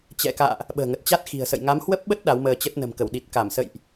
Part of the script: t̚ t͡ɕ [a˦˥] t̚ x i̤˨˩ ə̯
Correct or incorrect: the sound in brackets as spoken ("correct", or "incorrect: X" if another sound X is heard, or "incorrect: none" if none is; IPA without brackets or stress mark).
correct